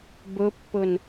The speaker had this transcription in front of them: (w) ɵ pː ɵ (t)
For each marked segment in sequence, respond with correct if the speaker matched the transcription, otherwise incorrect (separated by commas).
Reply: incorrect, incorrect